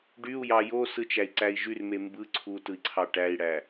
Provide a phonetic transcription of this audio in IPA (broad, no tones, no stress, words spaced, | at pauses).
ɖyu̯jɑ josɯt͡ʃæi̯ǀæi̯ ʒyrme mbɯ ǀʰutɯi̯ǀʰɑ ʈæi̯ɽæ